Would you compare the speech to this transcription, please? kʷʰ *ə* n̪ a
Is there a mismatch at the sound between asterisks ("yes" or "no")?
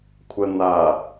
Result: no